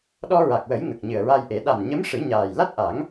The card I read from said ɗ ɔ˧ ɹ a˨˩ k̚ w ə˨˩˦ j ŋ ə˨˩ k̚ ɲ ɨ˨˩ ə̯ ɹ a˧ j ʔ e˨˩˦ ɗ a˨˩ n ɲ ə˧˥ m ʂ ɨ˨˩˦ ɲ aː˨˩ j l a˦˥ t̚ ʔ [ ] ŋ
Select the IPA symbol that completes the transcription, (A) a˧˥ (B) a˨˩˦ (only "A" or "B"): B